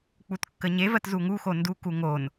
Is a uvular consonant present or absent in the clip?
absent